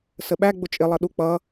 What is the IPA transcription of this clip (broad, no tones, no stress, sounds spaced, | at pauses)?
s ə ɓ æ ɡ͡b ʊ t͡ʃʼ ɪ lˠ ʌ ɗ u k͡p ʌ